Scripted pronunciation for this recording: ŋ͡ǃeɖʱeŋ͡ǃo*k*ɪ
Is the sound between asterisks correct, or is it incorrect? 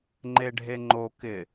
correct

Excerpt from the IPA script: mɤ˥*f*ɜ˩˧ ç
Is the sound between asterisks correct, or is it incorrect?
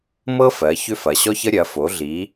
correct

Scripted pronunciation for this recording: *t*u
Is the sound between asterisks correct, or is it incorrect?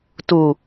correct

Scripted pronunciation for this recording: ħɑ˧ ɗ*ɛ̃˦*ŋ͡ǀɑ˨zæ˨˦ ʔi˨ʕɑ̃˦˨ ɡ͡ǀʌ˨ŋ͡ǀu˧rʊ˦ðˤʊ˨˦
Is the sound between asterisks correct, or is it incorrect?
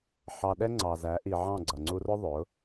incorrect: ɛ˦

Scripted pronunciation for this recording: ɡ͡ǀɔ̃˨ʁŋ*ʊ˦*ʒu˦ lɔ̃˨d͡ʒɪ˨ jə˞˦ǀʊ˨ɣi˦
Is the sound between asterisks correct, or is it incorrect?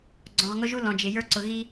correct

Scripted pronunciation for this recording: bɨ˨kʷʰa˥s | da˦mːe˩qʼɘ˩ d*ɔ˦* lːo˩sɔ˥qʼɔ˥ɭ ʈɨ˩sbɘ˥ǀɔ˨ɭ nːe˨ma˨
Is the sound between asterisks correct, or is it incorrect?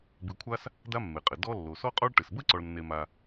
correct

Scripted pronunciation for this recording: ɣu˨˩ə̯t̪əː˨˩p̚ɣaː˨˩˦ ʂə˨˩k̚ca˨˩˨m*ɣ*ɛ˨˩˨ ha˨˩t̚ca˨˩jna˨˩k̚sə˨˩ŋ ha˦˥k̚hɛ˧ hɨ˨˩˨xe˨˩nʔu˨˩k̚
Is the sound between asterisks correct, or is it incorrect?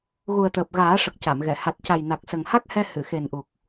correct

